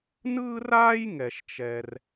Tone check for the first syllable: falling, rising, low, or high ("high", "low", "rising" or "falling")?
high